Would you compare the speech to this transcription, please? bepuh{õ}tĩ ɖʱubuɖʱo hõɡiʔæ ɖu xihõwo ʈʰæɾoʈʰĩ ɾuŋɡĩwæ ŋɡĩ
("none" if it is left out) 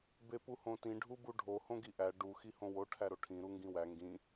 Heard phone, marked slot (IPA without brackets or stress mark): õ